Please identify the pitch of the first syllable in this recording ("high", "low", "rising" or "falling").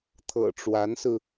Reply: low